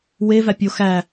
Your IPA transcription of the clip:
w e v æ pʲ o x æ

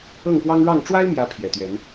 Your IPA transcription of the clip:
ɤ˥˨ ŋ p w ɑ˦ ŋ ɻ ɑ˥˨ ŋ ʈ͡ʂ w a˦ ɪ̯ m j ä˨˦ pʰ j ɛ˨˩ t̪ ɥ ɛ˨˦ n

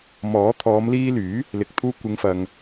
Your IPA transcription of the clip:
m ɔː˨˥ t̪ʰ ɔː˨˧ m l iː˧ l yː˨˥ | l ɪ˨ k̚ t̪ʰ uː˧ kʷ ɪ˨˧ ŋ f ɐ˨ ŋ

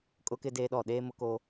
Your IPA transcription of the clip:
kʼ ʊ˦ k ɪ˦ d eː˦ ɗ ɔ˦˨ ɗ eː˦ m ʊ˦ k o˦

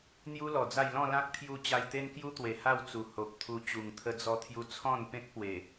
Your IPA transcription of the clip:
n̪ j u˦ l ɔ˨˩ d͡z a˥˧ j l ɔ̃˥˧ l ã˦ k̚ t̪ʰ j u˧ t͡ɕ a˧ j t̪ e˦ n k j u˦ t̪ w e˨˩ h a˥˧ w t͡s u˨˩ h o˨ p̚ t̪ʰ u˧ t͡ɕ u˨˩ ŋ t̪ʰ ə˧ d͡z ɔ˧ t̪ʰ j u˧ t͡sʰ ɔ̃˥˧ n p ẽ˦ k̚ p w e˨˩

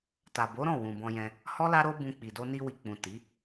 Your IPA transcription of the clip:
t a˨ b o˨˦ ɾ ɔ̃˦˨ w ũ˨ b ɔ̃˧ j ɛ̃˧ | h ɔ˦ l a˦ ɾ o˦ b ũ˧ k͡p i˨ d o˧ n i˧ w i˨ k͡p ũ˨ t i˨˦

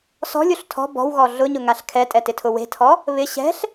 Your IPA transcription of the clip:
s ɔ̤ lʲ o ɬ tʰ ɔ̤ b ɔ̤ w ɣ ɔ ɮ ʊ ɲ ʊ ŋ a ɬ kʰ ɛ tʼ ɛ t ɪ tʰ ʊ w e̤ tʰ ɔ | β ɪ ɕ ɛ̤ ɬ

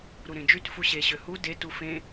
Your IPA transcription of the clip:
ɾ u ɾ ẽ d͡ʒ y t f u ɕ e ɕ ø h u d e t u f ẽ

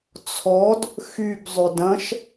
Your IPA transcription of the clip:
t͡sʰ ɔ d | x y b zˤ ø d ɐ̃ ʃ

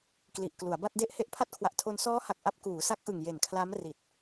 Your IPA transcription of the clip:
k l i˨˩ ʔ k l u˩˦ a̯ b a˥˩ t̚ d e˥˩ ʔ h e˦˥ ʔ pʰ a˦˥ t̚ kʰ w a˨˩ ʔ tʰ o˧ n s ɔː˦˥ h a˨˩ k̚ ʔ a˥˩ p̚ k uː˩˦ s a˦˥ k̚ ʔ ɯ˨˩ ŋ j e˨˩ n kʰ l a˦˥ m r i˨˩ t̚

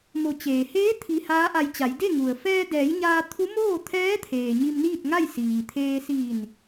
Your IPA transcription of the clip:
m o˩˧ t͡ɕ eː˩ h eː˧˥ t̪ʰ i˧ h aː˧˥ ʔ a˧ j t͡ɕ a˩˧ j d e˥˨ ŋ u˩ ə̯ f ɛː˧ d ɛː˩˧ j ɲ aː˧ t̪ʰ u˧˥ m oː˥˨ t̪ʰ ɛː˧˥ t̪ʰ eː˩ ɲ i˧ m n iː˥˨ t̚ ŋ a˥˨ j s iː˩ t̪ʰ eː˧ s iː˧˩ n

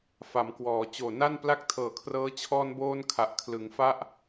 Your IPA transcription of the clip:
f a˩˦ m k w ɔː˩˦ t͡ɕ oː˨˩ n a˥˩ n p l a˥˩ k̚ tʰ ɤː˨˩ kʰ r ɤː˦˥ t͡ɕʰ ɔː˧ n b oː˧ n kʰ a˨˩ ʔ kʰ l ɯ˩˦ ŋ f a˥˩ ʔ

